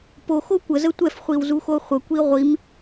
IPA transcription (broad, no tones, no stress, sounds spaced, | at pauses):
p o x o kʷ ə z ə tʷ ɛ f χʷ i w z u x o χʷ ə kʷ i ʁʷ i m